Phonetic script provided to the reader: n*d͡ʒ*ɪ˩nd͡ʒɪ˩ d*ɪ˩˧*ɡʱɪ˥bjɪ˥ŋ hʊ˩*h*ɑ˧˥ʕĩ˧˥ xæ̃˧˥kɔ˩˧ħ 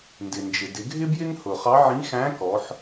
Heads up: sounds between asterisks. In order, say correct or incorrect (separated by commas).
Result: incorrect, correct, incorrect